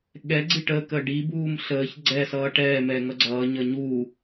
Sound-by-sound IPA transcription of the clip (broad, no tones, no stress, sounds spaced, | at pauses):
ɠ ɛ ɡ͡ǀ i ʈ əː k əː ɖ i b uː m ɬ əː ç ɡ͡ǀ ɛ s ʌː ʈ ɛː m ɛ ŋ ʌ ɡ͡ǀ ʌː ɲ ʌ ɲ uː